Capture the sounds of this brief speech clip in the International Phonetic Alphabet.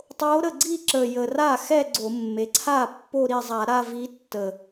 tˤo˧˥ɾə˥˩ɡ͡ǀi˥˧ ǁə˨˩jə˨˩ra˥˩ xɛ˥˧ɡ͡ǀo˧˩˧mːe˩˧ǀʰa˥˩ pːo˥˧ɾi˥˩zˤa˧˩˧ ɾa˥˧vi˧˥tːə˨˩

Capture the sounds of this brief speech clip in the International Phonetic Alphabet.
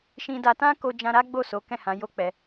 ʃĩ˧da˧ tã˦ko˧d͡ʒã˧ ɾa˦ɡ͡bo˦˨ so˨˦kɛ̃˦˨hã˨˦ jo˦k͡pɛ˧

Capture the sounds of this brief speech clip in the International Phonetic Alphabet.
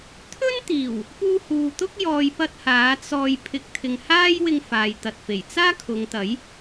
t̪ʰɵ˥nt̪iː˨˩w | puː˧huː˨t̪ʊ˥k̚ jɔː˧jpɐ˥t̚haː˨˥ t͡sɔː˧j pʰɪ˨˥k̚t̪ʰɪ˨ŋhaː˥jwɪ˧ŋ faː˨jt̪ɐ˨t̚fe˨˩j t͡saː˥ kʰʊ˨˧ŋt̪ɐ˨˥j

